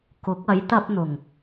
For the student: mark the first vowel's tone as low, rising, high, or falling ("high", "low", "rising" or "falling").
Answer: rising